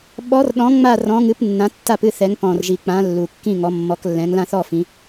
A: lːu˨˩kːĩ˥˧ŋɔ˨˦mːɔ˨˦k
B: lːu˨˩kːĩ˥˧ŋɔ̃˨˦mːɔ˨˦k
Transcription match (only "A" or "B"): A